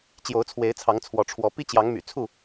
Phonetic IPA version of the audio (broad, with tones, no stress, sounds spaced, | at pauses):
t͡ɕ j o˨˦ ʊ̯ t͡sʰ w e˨˦ ɪ̯ t͡sʰ ɑ˨˦ ŋ t͡sʰ w ɔ˨˦ ʈ͡ʂʰ w ɔ˨˦ p i˦ t͡ɕ j ɑ˨˦ ŋ m y̰˨˩ t͡sʰ u˥˨